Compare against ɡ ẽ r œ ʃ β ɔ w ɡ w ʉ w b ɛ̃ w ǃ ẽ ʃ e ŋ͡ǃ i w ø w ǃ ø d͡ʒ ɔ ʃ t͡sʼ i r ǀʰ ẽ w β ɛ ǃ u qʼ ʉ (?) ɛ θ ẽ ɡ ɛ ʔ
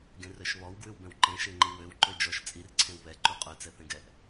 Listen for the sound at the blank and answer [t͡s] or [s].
t͡s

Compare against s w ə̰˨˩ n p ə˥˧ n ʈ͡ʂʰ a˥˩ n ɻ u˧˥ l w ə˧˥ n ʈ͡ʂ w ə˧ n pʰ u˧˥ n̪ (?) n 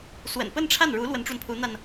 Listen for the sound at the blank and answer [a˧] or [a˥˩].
a˧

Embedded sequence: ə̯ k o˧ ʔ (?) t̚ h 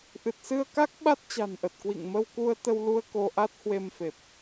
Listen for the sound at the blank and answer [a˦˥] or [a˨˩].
a˦˥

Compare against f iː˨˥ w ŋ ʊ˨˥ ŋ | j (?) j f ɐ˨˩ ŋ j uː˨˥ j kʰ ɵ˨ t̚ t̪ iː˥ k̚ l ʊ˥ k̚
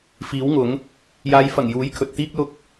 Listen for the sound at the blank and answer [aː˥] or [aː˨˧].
aː˨˧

